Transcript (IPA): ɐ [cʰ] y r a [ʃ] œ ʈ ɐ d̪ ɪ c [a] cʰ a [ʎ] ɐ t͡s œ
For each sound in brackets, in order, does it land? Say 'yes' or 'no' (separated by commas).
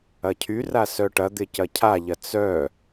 yes, no, no, yes